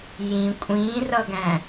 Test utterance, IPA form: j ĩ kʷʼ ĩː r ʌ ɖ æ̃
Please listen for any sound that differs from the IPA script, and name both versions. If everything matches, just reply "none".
ɖ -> ɡ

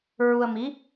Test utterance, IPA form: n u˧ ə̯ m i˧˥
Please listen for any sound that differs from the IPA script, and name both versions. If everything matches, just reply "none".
n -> ɹ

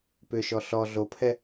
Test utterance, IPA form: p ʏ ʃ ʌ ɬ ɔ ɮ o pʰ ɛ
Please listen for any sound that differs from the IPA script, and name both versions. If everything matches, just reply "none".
ʌ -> ɔ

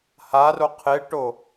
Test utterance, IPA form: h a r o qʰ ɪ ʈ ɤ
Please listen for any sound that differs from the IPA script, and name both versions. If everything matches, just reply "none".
ɤ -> o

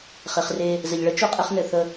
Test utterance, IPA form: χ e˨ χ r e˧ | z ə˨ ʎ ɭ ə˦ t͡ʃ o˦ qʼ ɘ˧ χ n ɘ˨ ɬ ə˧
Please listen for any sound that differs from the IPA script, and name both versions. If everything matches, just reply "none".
ɬ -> θ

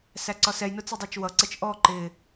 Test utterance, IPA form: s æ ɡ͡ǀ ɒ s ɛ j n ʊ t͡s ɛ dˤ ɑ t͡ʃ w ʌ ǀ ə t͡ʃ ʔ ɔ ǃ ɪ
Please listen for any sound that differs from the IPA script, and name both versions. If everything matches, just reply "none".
ɡ͡ǀ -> ǀ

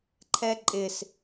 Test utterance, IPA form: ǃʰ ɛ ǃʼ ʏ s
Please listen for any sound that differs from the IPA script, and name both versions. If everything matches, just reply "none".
ʏ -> ɪ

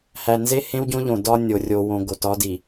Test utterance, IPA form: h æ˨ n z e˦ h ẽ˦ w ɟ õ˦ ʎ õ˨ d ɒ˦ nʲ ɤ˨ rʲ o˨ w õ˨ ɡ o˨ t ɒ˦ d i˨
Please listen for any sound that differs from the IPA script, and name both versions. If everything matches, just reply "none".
ɤ˨ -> o˨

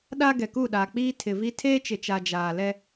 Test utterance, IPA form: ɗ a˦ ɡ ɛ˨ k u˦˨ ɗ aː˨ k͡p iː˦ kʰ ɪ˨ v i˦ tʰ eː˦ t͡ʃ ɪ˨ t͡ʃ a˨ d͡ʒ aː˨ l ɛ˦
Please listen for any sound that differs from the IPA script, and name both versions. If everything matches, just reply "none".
kʰ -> tʰ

